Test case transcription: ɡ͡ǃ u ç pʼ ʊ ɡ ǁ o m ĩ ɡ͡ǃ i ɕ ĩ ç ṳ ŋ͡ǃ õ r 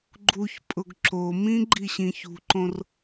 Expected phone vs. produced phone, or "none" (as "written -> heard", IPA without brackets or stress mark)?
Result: ŋ͡ǃ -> ǃ